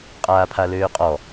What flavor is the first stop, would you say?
ejective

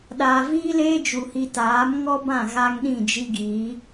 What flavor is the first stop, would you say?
implosive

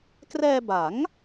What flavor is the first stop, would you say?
plain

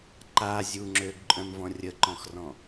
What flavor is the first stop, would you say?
click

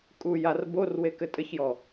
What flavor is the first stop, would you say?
ejective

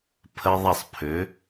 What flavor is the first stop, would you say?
aspirated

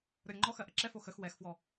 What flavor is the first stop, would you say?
click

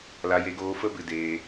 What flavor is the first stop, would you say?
plain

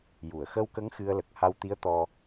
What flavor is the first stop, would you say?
plain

